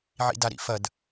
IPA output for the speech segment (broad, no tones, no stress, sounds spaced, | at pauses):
ʕ ḭ d a ɾ ḭ f ɐ d